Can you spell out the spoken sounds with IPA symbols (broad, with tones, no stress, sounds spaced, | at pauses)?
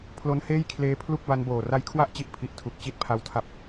pʰ l o˧ n h eː˥˩ j kʰ l eː˦˥ pʰ l u˥˩ k̚ b a˧ n b oː˨˩ r a˦˥ j kʰ w a˥˩ ʔ t͡ɕ i˦˥ ʔ pʰ i˨˩ ʔ tʰ u˨˩ k̚ t͡ɕ i˦˥ t̚ pʰ a˧ w tʰ a˦˥ p̚